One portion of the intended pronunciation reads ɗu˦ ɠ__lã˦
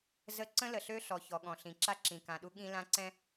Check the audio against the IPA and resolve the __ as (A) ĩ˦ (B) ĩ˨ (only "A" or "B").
A